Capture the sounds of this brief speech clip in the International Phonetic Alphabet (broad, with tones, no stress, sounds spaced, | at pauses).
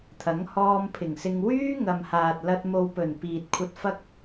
t̪ʰ ɐ˨˥ ŋ h ɔː˧ m pʰ ɪ˨˩ ŋ s ɪ˧ ŋ w yː˥ ŋ ɐ˨ m h aː˨ t̚ l ɐ˧ t̚ m o˨ w p ɵ˨˩ n p iː˨ t̚ kʷʰ ɐ˧ t̚ f ɐ˥ k̚